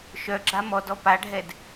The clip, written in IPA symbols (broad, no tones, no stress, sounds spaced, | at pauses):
ʃ œ ɡ͡ǁ a m ɔ d ɔ p a ɖʱ ɛ d